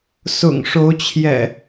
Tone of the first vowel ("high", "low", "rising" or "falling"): low